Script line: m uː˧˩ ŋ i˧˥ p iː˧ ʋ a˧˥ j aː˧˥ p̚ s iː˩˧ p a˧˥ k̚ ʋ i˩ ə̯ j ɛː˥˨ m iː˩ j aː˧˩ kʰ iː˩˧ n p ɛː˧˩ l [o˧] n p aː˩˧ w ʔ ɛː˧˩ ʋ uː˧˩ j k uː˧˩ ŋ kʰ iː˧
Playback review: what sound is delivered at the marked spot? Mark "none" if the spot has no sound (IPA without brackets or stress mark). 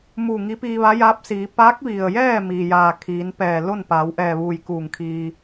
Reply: o˥˨